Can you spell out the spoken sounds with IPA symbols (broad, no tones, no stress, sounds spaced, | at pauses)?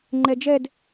ŋ͡ǃ ɛ d͡ʒ ɛ d